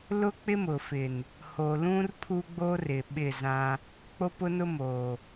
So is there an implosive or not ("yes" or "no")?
yes